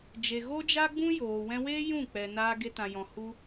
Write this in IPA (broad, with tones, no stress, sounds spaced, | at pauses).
d͡ʒ e˨ ɣ o˦ d͡ʒ a˦ ɡ͡b ũ˦ j oː˨ w ɛ̃˧ w eː˦ j ũ˦˨ k͡p ɛ˨ n aː˧ ɡ e˧ t ã˨ j ɔ̃˨ h u˧